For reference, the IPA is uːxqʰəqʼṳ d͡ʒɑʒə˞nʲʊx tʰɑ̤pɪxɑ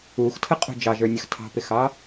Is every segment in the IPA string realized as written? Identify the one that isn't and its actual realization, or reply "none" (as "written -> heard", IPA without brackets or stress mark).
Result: qʰ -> tʰ